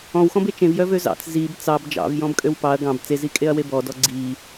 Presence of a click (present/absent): present